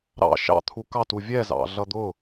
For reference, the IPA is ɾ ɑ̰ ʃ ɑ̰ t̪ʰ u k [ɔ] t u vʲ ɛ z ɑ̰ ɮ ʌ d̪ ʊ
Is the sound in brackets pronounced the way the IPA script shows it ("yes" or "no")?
no